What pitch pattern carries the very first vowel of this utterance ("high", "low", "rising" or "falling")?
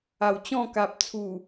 low